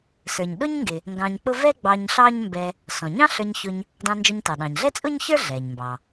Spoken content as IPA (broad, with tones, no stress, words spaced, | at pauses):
sə˞˩ɲɗʊ˥ɲŋɡɪ˩ | ŋɡɑ̃˧ɲk͡pʊ˥ vɛ˥ɡ͡bɑ˧ɲ ɬɑ˥ɲmbɛ˧ | sɔ̃˩ɲɑ̃˥ɬə˞˧ɲ çʊ˧ɲ | dɑ̃˧nd͡ʒɔ˧ɲtɑ˩ ɗɑ̃˩ɲɮɛ˥t͡sʼʊ˥ɲ çə˞˥ ɮɛ˩ɲmbɑ˩